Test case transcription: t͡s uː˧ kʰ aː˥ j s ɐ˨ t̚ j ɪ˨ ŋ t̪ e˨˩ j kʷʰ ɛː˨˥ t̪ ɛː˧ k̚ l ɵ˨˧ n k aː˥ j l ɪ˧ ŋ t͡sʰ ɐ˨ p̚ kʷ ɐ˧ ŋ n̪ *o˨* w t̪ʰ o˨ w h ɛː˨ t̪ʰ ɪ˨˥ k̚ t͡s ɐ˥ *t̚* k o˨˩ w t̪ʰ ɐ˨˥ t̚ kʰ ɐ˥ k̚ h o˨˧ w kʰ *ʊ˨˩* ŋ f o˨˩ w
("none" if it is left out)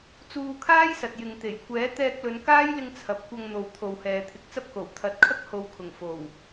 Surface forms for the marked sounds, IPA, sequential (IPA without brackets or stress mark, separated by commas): o˨, p̚, ʊ˨˩